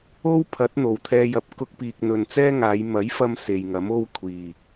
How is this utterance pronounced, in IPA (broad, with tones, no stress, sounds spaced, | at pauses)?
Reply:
o˥ w pʰ ɐ˨˥ t̚ n̪ o˨˩ w t̪ʰ ɛː˧ j ɐ˨ p̚ k ʊ˧ k̚ p iː˨ k̚ n̪ ɵ˨ n t͡s ɛː˥ ŋ aː˨˧ j m ɐ˨˥ j f ɐ˧ m s e˨ j ŋ ɐ˨˥ m o˥ w kʷʰ iː˨˩